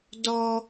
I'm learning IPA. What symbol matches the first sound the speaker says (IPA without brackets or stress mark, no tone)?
d